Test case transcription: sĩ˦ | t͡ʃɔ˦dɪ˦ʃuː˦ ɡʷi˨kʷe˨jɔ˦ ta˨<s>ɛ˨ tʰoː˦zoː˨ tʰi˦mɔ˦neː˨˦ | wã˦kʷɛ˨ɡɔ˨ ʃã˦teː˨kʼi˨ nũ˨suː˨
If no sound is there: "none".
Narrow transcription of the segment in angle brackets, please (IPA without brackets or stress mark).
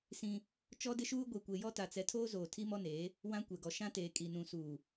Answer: t͡s